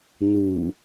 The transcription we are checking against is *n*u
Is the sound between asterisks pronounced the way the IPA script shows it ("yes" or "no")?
yes